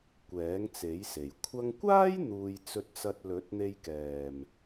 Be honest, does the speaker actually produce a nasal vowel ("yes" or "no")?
no